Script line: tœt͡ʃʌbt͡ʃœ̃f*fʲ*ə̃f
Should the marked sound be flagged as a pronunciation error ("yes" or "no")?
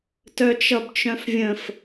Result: yes